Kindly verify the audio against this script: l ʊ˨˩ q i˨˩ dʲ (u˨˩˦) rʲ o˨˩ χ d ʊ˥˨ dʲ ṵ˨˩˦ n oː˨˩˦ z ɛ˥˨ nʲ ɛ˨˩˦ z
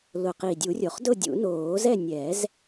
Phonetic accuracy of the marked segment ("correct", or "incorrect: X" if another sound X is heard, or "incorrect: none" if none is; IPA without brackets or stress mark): correct